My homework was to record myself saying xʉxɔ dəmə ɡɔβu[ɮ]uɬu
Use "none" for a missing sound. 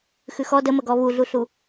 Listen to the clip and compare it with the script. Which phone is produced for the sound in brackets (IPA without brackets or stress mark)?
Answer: ɮ